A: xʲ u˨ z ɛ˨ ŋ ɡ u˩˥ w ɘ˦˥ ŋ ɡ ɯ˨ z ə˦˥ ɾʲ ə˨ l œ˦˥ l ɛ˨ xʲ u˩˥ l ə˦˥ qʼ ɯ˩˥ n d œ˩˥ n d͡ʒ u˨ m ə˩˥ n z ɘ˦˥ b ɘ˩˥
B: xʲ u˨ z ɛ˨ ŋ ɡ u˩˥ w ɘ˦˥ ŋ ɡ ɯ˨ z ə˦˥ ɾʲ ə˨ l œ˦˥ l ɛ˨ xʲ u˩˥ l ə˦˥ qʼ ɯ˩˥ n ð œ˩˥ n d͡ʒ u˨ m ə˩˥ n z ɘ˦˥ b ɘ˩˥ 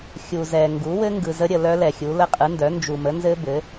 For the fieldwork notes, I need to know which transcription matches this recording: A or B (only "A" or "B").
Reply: A